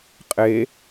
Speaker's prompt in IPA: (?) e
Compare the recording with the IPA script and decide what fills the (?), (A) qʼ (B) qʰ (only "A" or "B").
A